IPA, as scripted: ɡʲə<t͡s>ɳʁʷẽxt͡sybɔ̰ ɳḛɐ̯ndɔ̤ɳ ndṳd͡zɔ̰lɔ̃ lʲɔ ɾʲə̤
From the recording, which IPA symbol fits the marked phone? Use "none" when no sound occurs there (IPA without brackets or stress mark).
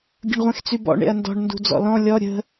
none